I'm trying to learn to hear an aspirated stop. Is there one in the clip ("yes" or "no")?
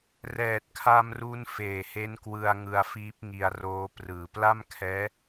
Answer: yes